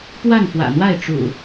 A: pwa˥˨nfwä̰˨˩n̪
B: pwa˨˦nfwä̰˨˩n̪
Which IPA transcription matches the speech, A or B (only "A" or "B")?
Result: A